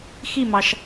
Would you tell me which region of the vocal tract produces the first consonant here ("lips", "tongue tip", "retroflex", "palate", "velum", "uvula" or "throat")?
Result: velum